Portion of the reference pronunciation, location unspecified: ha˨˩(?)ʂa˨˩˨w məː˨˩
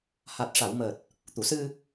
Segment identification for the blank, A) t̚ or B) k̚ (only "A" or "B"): A